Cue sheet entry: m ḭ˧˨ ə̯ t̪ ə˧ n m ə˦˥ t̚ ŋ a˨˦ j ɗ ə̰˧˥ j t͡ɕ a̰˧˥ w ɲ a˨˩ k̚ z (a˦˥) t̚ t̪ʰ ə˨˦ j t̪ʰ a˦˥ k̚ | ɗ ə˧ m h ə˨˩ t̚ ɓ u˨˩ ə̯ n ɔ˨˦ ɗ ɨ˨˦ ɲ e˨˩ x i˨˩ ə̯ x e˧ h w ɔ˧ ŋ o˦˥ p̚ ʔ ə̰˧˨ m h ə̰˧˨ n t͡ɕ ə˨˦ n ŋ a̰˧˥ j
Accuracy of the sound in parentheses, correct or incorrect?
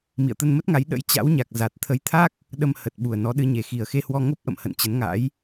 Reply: incorrect